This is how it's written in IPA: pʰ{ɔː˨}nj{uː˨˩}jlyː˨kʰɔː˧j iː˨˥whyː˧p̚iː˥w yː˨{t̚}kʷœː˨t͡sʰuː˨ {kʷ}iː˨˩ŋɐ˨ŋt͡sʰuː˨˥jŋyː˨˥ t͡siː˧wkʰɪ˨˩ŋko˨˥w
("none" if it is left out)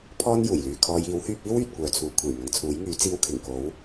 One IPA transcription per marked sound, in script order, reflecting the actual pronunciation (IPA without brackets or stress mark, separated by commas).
ɔː˥, uː˨˩, t̚, kʷʰ